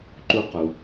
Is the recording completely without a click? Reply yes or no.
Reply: no